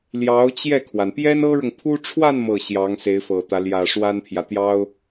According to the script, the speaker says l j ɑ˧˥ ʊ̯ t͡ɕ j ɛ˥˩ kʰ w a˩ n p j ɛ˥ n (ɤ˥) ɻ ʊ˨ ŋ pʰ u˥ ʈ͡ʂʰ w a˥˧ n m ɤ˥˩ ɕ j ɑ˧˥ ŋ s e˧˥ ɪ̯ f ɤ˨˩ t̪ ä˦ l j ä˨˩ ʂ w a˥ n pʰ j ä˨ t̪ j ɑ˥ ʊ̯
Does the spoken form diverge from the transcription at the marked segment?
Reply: no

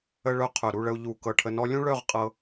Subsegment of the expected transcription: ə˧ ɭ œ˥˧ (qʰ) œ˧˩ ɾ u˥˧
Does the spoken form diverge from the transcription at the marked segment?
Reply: no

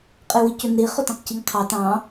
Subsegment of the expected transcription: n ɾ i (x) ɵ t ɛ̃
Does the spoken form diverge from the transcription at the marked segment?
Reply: yes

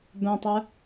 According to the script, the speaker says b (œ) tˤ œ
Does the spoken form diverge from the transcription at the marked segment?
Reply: yes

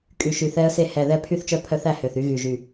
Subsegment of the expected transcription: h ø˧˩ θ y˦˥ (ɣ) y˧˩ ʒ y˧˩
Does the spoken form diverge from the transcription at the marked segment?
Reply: no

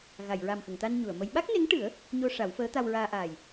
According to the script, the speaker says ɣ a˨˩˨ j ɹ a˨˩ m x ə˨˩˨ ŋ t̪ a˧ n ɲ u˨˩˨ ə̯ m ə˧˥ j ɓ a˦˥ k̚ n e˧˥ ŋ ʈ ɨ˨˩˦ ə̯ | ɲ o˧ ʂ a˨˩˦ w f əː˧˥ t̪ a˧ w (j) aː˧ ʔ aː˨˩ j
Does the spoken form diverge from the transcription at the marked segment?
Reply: yes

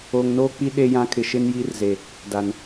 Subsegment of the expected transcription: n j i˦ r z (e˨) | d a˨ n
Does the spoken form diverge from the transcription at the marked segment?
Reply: no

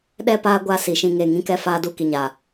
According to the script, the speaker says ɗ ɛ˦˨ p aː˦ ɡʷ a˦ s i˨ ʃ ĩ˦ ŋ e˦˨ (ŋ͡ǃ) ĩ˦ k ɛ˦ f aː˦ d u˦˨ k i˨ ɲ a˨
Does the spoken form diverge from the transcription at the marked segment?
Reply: yes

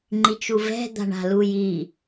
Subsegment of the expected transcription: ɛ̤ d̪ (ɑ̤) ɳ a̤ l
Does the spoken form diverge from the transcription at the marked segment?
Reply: yes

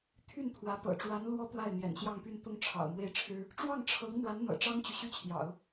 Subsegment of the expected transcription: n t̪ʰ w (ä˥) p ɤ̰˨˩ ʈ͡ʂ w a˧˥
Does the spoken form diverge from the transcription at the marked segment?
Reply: yes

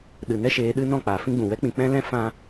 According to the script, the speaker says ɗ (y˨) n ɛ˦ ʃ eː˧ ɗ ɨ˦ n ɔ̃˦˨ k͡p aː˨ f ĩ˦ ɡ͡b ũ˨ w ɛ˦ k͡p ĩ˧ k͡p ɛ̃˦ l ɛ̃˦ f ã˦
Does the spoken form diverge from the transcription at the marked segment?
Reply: yes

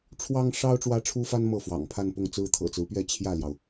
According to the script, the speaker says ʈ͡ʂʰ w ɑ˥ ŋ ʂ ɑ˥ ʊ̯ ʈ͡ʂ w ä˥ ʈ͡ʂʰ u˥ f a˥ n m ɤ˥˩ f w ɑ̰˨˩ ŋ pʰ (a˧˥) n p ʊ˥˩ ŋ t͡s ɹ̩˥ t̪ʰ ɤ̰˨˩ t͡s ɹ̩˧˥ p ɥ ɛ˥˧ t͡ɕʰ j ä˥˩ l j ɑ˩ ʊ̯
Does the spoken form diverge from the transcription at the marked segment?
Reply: yes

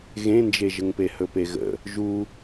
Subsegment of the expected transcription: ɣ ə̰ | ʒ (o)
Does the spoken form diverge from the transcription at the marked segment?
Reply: yes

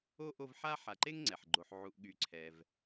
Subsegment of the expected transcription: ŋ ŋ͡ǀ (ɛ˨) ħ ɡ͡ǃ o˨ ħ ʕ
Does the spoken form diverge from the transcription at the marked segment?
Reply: yes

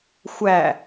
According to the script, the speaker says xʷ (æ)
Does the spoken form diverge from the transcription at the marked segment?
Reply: no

